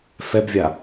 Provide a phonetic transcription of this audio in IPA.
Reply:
f ɛ b vʲ a

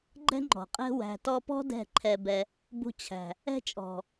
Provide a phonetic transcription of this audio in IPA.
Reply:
ɡ͡ǃ ɛ̤˦ ŋ͡ǃ ɔ̤˨ qʼ ɛ̤˦ w æ̤˨ t ɔ˧ p ɔ̤˦ d ɛ̤˦˨ ǃʰ ɛ˧ b ɛ˧ | b ṳ˧ t͡ɕʰ æ̤˨ | ɛ̤˦ t͡ʃʼ ɔ̤˨

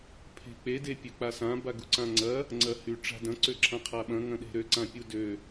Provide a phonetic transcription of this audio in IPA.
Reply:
pʰ e̤ k͡p e d e pʲ ø k͡p a s ã b a ɡ u ǀ ã ŋ͡ǀ ɐ | ŋ͡ǀ ɐ h y ʈ͡ʂ a̤ d ɐ̃ ǀ ø ǁʰ ã qʰ a ɓ ɐ̃ ŋ ɐ̃ ɗ e̤ ɾ ø ǀ ã pʲ u d ø

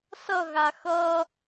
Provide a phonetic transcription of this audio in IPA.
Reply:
s ʌ ɣ a x ʌ

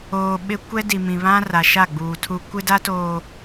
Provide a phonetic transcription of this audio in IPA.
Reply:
oː˨ ɓ ɪ˦ kʷ ɛ˦ d i˨ m ĩ˨ β ã˦ r a˨ ʃ a˦˨ ɡ͡b uː˨ tʰ u˦ kʷ ɪ˦ d a˦ t oː˨

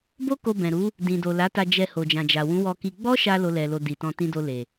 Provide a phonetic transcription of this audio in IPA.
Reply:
b o˦ k o˧ b ɛ̃˨ ɾ u˨˦ | d ĩ˨ d o˨ l a˨˦ t a˧ d͡ʒ ɛ˧ h o˨ d͡ʒ ã˨ d͡ʒ a˨ w ũ˨˦ w ɔ˧ k i˧ ɡ͡b ɔ˦ ʃ a˧ l o˦ l ɛ˧ l o˧ d i˨ t ɔ̃˧ t ĩ˧ d o˧ l e˨

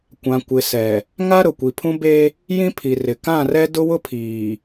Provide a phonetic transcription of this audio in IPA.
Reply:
kʷ ã˨ kʷ ɪ˨ s ɛ˨ | ŋ a˦ ɾ ʊ˨ kʷ i˨ pʰ ũ˦ b e˦ | j ĩ˦ pʰ i˨ r ɪ˨ k ã˦˨ r ɛ˦ d ʊ˦ w ʊ˦ pʰ iː˨

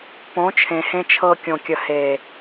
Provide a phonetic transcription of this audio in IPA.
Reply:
p õ˨˦ t͡ʃʰ ẽ˨ h ẽ˧ t͡ʃʰ ɤ˧ kʲ õ˨ kʲ ə˨ h e˨

